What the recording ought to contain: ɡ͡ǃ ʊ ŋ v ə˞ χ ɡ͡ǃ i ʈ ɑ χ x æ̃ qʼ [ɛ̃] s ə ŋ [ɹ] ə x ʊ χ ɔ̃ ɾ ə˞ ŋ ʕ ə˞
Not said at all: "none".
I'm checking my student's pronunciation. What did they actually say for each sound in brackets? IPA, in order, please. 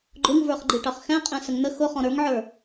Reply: ɛ̃, n̪

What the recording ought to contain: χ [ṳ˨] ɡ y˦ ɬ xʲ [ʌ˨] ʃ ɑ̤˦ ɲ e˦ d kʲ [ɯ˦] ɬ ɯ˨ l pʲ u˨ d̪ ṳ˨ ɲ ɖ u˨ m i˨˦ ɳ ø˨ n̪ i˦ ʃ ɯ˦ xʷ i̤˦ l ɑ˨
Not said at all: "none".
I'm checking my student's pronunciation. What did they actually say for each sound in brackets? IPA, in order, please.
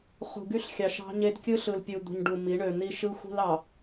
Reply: ṳ˨, ɑ˨, ɯ˦

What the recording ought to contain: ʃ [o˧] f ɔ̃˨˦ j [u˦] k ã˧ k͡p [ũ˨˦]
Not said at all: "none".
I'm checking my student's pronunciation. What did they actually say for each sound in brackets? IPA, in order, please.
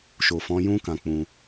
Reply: o˨, ũ˦, ũ˧

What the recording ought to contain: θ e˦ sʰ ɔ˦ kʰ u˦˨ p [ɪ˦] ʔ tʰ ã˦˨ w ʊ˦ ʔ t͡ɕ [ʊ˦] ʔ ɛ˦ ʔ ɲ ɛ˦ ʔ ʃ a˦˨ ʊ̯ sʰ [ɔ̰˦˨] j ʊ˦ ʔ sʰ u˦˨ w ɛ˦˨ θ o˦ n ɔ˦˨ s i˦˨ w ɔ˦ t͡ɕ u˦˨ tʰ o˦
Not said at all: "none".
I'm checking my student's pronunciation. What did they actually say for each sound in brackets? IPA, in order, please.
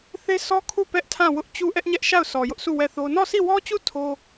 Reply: ɛ˦, u˦, ɔ˨

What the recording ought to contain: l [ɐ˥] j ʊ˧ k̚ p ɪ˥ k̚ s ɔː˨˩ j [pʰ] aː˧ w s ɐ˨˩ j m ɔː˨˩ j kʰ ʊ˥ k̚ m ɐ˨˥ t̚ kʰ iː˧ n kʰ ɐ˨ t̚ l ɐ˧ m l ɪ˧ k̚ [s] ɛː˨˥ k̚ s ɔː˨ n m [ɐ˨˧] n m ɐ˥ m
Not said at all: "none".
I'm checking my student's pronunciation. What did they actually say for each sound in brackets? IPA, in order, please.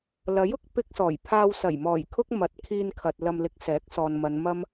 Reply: ɐ˨˥, pʰ, s, ɐ˨˧

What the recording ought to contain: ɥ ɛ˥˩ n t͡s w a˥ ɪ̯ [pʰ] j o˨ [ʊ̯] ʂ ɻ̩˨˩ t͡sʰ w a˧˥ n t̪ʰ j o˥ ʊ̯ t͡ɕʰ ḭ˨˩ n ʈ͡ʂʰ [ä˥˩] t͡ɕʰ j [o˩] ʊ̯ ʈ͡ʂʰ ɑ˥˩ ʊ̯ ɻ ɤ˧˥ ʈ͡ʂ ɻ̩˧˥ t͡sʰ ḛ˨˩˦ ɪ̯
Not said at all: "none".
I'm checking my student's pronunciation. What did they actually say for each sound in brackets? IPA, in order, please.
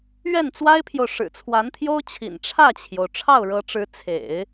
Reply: pʰ, ʊ̯, ä˥˩, o˩

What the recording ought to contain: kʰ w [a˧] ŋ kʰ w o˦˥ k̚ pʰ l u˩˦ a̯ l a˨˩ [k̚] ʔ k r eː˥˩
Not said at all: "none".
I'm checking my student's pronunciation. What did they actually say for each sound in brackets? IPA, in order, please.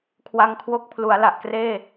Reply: a˧, none

